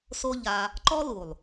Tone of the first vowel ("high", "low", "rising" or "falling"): high